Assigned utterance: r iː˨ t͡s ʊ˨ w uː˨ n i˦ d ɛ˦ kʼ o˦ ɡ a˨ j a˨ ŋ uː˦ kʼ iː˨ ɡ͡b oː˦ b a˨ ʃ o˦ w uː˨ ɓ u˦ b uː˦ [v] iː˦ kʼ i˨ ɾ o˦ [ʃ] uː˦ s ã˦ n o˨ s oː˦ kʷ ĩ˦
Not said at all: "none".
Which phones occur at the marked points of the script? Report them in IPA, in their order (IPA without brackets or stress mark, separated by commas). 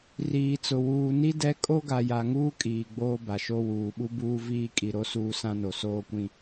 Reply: v, s